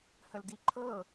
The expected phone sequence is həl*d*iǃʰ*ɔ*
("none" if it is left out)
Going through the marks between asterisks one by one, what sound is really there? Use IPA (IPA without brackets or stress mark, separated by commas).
d, ɤ